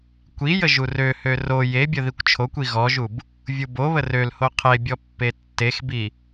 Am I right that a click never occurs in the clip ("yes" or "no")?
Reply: yes